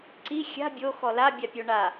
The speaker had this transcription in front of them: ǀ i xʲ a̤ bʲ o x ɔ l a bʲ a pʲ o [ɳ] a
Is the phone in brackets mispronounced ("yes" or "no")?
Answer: no